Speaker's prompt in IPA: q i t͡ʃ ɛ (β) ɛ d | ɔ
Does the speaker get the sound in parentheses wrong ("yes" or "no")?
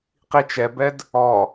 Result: yes